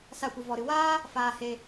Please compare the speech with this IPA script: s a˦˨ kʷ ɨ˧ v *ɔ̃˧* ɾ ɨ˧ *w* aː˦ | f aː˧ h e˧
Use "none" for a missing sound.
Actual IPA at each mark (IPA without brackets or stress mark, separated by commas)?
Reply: ɔ˧, w